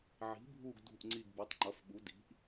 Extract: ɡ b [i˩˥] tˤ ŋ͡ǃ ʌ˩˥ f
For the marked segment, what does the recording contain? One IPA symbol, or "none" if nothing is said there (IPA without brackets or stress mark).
i˩˥